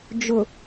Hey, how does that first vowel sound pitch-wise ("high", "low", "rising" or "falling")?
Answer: low